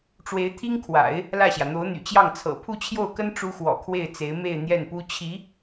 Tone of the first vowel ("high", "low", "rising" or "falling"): rising